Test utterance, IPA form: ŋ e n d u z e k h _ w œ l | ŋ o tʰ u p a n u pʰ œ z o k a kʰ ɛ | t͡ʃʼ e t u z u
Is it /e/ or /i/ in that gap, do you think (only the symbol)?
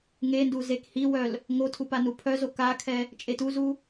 i